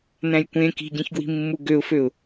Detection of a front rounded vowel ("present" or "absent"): present